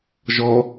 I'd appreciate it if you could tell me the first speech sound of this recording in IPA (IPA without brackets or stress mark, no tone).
ʒ